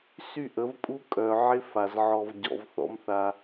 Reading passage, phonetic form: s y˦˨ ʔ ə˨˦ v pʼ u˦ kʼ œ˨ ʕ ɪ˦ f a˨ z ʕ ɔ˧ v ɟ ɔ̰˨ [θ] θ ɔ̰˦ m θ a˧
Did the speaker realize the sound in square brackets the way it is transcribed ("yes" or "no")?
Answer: no